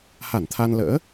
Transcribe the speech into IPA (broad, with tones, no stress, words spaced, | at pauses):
ha˧˩nt̪ʰa˧nlə̰ː˧˥